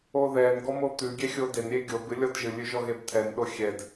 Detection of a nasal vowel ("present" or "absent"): absent